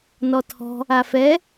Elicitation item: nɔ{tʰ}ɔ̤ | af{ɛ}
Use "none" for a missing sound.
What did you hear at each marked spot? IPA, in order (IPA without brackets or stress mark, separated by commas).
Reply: tʰ, ɛ